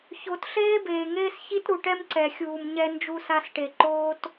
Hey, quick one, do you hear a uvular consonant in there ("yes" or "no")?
no